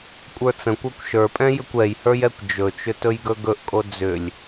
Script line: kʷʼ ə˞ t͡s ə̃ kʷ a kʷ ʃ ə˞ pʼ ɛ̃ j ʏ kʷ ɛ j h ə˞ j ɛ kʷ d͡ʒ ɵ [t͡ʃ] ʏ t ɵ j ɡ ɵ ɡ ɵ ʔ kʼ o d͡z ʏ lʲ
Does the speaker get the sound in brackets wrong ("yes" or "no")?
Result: no